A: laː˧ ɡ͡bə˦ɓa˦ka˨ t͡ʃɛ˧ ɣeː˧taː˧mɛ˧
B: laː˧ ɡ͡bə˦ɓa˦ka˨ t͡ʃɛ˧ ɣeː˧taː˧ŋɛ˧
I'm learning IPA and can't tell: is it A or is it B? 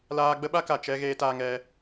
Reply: B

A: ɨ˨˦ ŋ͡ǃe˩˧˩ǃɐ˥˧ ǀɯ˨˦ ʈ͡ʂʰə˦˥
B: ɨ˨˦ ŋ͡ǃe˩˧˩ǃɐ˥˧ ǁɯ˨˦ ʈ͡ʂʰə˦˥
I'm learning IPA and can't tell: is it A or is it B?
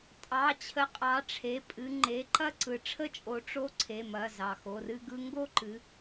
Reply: A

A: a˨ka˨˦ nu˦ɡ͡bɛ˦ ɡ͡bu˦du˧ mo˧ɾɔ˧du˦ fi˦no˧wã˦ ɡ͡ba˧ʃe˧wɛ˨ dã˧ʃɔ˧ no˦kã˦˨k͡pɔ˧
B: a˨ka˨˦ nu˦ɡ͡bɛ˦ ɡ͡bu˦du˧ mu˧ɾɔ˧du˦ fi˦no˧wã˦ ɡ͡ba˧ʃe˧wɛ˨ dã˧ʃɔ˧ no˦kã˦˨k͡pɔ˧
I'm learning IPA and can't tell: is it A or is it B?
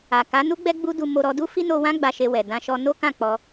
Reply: A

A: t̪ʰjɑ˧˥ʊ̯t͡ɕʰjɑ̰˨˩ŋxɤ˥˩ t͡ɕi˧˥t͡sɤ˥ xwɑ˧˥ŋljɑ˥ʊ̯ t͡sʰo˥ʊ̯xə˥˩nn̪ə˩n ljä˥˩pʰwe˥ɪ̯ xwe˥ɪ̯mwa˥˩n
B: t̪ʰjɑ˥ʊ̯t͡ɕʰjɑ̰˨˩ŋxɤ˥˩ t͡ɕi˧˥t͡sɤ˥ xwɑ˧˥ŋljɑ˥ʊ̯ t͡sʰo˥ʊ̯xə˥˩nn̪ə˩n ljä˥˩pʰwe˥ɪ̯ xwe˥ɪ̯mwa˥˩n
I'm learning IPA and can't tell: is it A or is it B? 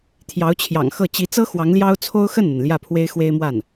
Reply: A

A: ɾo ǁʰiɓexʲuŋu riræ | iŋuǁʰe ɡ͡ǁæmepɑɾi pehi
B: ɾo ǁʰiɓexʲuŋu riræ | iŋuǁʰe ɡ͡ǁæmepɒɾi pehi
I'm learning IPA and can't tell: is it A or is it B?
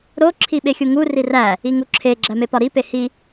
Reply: B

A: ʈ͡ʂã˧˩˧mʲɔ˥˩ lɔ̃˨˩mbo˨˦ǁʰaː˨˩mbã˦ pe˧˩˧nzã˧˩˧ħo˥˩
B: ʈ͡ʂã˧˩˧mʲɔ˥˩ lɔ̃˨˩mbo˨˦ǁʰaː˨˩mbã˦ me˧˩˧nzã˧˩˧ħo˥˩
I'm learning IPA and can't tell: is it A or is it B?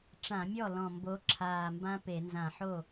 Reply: A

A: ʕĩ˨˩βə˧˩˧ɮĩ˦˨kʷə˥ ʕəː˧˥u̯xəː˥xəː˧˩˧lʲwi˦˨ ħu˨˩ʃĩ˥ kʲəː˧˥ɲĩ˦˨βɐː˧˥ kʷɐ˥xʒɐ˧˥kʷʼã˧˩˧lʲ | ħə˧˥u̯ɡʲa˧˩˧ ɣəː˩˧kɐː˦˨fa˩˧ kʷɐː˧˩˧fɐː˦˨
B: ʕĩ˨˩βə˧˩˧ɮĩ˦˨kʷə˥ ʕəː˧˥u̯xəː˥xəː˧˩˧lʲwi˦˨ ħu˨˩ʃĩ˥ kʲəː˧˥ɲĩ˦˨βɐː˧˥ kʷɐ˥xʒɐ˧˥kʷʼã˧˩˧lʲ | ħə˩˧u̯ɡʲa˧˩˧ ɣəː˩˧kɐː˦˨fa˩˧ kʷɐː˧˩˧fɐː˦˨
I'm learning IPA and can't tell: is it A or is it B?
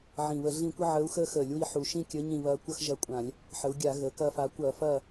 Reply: B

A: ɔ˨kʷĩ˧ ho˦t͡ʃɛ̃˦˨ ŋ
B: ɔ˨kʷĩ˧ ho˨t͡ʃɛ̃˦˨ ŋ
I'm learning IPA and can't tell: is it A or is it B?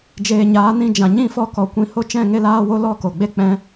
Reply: A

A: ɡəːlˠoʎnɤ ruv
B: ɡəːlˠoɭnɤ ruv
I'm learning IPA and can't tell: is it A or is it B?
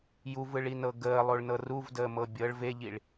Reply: B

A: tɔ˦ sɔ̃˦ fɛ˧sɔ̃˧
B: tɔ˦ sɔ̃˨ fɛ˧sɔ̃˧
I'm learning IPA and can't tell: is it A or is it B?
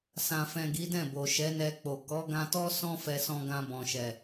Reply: A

